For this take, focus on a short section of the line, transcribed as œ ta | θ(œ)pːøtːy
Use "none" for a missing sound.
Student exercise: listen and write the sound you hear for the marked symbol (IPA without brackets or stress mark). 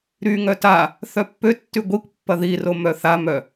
œ